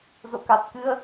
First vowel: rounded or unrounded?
rounded